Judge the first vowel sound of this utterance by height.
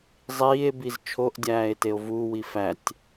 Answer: high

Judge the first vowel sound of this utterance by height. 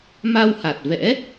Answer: low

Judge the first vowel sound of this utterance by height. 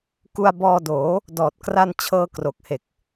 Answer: high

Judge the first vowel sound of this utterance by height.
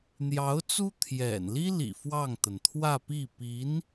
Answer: low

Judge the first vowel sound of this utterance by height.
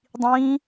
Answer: high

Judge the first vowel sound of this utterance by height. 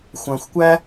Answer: low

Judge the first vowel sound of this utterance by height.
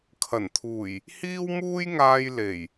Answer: low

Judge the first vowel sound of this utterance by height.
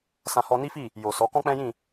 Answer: low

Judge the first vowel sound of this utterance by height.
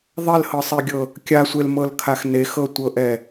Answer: mid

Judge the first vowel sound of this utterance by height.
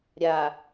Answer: low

